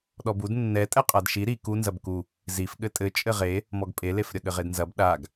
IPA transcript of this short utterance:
ɗ ɔ b u d nː ɛ tʼ ɛ qʼ a d ʃ i ɾ i k u n z ɐ b k u | z i f ɠ ɘ tʼ ɘ t͡ʃʼ ɘ ʁ e | m ɔ ɡ pʼ e l e f ɾʲ ɐ ɠ ɘ ʁ e d n z ɐ b ɗ a ɡ

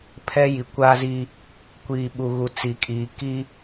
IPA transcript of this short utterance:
pʰ ɛ˦ j i˨ kʷ aː˦ z iː˦ | kʷ iː˨ ɓ u˨ ɣ u˨ t͡s i˨ kʼ iː˨ k iː˦

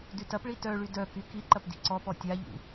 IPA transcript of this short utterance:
d y t ɐ p ɭ i t œ ɭ y d œ k y k i ǃ ɐ p d i̤ ǀ ɔ p ɔ tʲ a ʎ ṵ

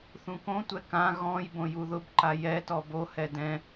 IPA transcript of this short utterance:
θ ũ k õ tʷ ɛ k ã ɣ ɔ̃ j b õ j u ð ʊ b ǃ a j ɛ t ɔ b o h ɛ d ɛ̃

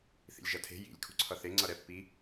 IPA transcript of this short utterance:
θ ḭ lʲ ʒ ʌ tʰ e̤ j ḭ lʲ kʰ ṳ ǀʰ ʌ θ e ŋ͡ǀ ʌ ɾ ɛ pː i

